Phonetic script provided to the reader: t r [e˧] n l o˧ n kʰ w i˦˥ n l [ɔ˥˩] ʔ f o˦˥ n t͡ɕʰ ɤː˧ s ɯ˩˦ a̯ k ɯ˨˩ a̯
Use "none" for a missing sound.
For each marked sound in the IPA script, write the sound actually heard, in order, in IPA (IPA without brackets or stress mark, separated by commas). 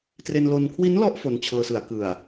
e˧, ɔ˦˥